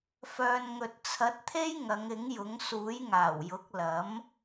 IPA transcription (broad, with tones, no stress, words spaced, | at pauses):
fœː˨n ŋɵ˨t̚t͡sʰɐ˨˥t̚t̪ʰe˥j ŋɐ˨˧ŋɪ˨˥ŋjʊ˨˥ŋ suː˨˥jŋaː˨˩wjʊ˨˥k̚ lɐ˨˥m